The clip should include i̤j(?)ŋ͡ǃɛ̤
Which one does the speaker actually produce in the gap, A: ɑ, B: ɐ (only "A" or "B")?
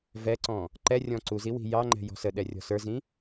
A